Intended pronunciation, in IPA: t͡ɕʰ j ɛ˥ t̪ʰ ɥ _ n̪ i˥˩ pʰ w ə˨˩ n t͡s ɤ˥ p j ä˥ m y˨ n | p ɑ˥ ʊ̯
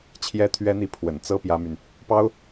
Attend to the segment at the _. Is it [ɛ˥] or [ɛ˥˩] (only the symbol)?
ɛ˥